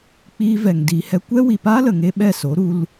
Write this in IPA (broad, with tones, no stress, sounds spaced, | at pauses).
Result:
k͡p iː˧ v ɛ˨ ŋ d iː˨ h ɛ˧ kʷ ɛ˦ w i˨ p aː˦ l ə˨ ŋ e˧ ɓ ɛ˦˨ s o˨˦ ɾ u˧ l